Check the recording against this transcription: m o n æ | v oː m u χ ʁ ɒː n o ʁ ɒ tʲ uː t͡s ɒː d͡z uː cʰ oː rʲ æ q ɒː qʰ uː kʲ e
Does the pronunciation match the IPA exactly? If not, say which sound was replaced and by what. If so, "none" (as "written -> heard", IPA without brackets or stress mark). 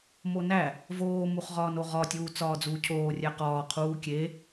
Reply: none